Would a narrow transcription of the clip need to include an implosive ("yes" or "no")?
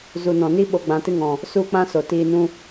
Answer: yes